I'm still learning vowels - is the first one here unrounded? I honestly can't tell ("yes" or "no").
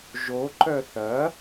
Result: no